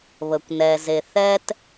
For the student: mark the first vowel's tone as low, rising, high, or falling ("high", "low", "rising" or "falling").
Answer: low